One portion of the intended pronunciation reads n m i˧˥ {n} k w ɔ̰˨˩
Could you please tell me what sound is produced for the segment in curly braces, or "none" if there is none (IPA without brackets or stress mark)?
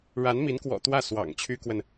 n